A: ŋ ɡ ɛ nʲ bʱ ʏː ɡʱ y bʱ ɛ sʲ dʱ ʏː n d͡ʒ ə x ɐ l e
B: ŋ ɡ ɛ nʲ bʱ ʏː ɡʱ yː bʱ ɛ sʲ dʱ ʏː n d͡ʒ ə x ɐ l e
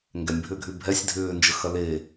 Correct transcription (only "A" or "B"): A